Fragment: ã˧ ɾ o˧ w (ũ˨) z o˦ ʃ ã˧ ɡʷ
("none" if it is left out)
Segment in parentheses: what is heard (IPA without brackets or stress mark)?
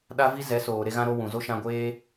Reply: ũ˨